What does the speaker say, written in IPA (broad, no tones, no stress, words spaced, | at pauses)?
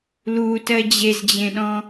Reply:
lutɜ d͡ʑezd͡ʑẽɗɔ̃